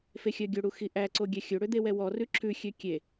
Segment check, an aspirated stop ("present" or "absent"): present